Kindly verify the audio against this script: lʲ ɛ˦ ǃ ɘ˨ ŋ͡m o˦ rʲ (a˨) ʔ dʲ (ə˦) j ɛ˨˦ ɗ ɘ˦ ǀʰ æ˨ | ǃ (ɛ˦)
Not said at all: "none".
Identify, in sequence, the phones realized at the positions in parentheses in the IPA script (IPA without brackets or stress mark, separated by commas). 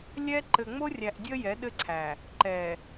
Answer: æ˨, ə˦, ɛ˨